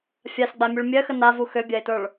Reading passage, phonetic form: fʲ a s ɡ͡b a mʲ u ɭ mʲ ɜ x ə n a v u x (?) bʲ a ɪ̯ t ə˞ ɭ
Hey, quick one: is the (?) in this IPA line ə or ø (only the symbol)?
ø